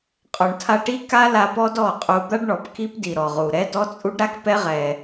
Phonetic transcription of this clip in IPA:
qʼ ɔ˨ ɳ tʰ a˧ ʈ i˦ k a˦ l a˧ p ɔ˦ d ɔ˦˨ qʼ u˧ d̪ a˦ ɖ ɳ ɔ˨ p k i˦ p d i˨ ɾ ɔ˨ ʁ u˨ ɾ ɛ˦ d ɔ˦ t͡sʼ u˦ ɖ ɾ a˦ k p ɛ˦ ʁ ɛ˧

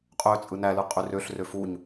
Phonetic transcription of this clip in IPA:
qʼ ø t͡sʼ ɯ n æ l ɯ qʼ y r ø ɬ r ø f u ɲ

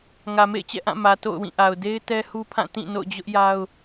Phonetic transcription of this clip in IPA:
ŋ ä˨ m ḛ˦˨ ɪ̯ t͡ɕ ɛ̰˦˨ ʔ ã˦˨ m ä˨ t o̰˦˨ ʊ̯ w ĩ˦˨ ʔ a˨ ʊ̯ d e˦ ɪ̯ t ɛ˦ h u˦ pʰ ã˦˨ t ĩ˦˨ n o̰˦˨ ʊ̯ d͡ʑ ʊ˦ ʔ j a˦ ʊ̯

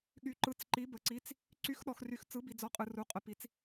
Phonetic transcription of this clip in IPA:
ɠ y˨ ǃ ɯ˨˦ t͡s ǃ i˨˦ b ə˨ ǀ i˨˦ t͡s | ǀ y˨˦ x ɗ ɔ˨ x r y˨ x t͡s ɯ˨˦ b i˨ d͡z ɔ˨˦ qʼ ɯ˨ r u˨˦ qʼ ə˨ p i˨˦ t͡s

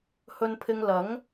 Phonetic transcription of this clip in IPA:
h ɵ˧ n pʰ ɪ˧ ŋ l ɐ˨˥ ŋ

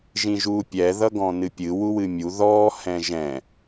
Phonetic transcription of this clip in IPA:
ʒ ĩ ʒ uː pʲ ɛ ð ʌ ɡ ɔ̃ n ɨ pʲ ɨ w u w ɨ mʲ u ð ɔː h ɛ̃ ʒ ɛ̃

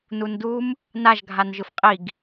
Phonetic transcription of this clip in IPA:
n u n d u m | n a ʒ ɡʱ a n ʒ ɯ f qʼ i ɡ

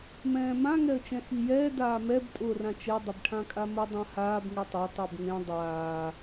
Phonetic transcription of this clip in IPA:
m ɛ̃ː m ã ŋ ɛ ə̯ t͡ʃ ɛ̃ x i j ɛː d aː m ɛ b tʼ ʊː r ã t͡ʃ ɛ dˤ ɪ b ʈʰ ã kʼ a m ʊ dˤ ã h aː b ŋ i tˤ ɛ tˤ ɛ b ŋ ẽ dˤ aː

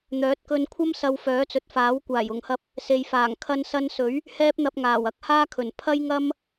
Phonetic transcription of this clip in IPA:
n̪ œː˨˥ t̚ k ɵ˧ n kʷʰ ɐ˥ m s ɐ˧ w f œː˨˥ t͡s ɵ˨ t̚ f aː˨˥ w kʷ aː˨˩ j ʊ˨˩ ŋ h ɐ˧ p̚ | s e˨ j f aː˨˩ ŋ kʰ ɐ˧ n s ɐ˧ n s ɵ˨˥ ɥ | h ɛː˥ p̚ n̪ ɐ˧ p̚ ŋ aː˨˩ w ɐ˧ k̚ h aː˥ kʰ ɵ˨˩ n pʰ ɐ˥ j ŋ ɐ˥ m

